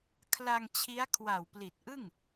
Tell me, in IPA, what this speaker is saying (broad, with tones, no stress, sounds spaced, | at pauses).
kʰ l a˧ ŋ t͡ɕʰ i˦˥ a̯ kʰ w a˨˩ w p l i˨˩ t̚ ʔ ɯ˥˩ ŋ